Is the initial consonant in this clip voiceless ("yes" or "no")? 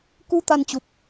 yes